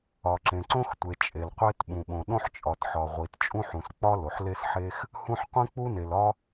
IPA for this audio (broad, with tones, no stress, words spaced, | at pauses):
ɒ˩ǁẽ˩ǀõ˥xtʷe˩ t͡ʃʼe˩l qʷe˥tɓũ˩ɓõ˩ ɗõ˥ħt͡ʃʼɒ˩tħɒ˩ ʁʷi˩tt͡ʃʼũ˥ħũ˩s k͡pɒ˥ lo˩ħ le˥sħe˥x | hũ˥ħ qʷĩ˥k͡pu˥ne˩l ɒ˥